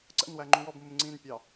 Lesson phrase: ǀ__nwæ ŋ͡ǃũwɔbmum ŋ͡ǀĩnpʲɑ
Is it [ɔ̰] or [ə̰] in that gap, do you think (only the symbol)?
ə̰